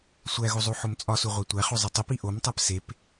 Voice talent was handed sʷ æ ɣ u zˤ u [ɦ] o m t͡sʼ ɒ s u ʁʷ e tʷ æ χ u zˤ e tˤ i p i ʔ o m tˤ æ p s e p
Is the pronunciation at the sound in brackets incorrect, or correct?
incorrect